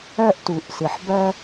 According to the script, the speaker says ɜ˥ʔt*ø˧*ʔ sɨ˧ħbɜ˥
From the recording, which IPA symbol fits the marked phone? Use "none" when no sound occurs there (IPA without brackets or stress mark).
u˧